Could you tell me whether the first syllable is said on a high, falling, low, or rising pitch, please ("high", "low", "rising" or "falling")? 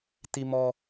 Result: high